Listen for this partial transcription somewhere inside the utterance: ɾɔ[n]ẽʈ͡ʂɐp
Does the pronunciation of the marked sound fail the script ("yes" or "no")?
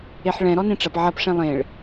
no